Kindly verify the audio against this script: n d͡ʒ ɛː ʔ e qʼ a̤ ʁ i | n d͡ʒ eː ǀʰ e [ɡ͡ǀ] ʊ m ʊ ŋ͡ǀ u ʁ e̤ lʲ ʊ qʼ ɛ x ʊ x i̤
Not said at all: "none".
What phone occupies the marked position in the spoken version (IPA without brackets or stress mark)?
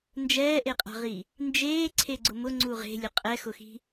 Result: ɡ͡ǀ